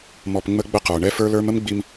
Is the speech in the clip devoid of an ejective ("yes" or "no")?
yes